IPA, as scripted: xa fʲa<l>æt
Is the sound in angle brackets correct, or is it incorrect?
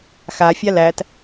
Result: correct